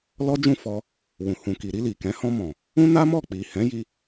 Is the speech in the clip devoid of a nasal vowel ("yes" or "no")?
no